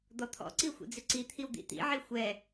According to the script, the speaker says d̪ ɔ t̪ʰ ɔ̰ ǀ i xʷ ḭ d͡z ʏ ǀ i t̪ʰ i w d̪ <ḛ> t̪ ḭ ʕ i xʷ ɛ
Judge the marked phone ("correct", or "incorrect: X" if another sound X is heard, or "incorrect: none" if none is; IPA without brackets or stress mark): incorrect: ḭ